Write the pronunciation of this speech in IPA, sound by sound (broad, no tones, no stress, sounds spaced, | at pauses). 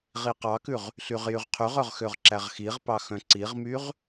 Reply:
ʁ i q ɑ k ʉ ʁ | ɬ y ʁ j y ʁ qʰ y ʁ œ ʁ x ø ʁ ǁ æ ʁ x i ʁ p ɑ x œ̃ ǀ i ʁ m y ʁ